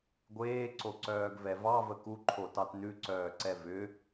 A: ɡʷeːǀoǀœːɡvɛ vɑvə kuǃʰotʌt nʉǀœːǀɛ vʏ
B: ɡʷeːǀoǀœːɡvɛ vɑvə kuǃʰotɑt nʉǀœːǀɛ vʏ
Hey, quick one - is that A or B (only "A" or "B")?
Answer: B